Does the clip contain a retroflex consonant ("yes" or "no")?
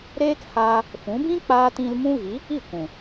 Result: no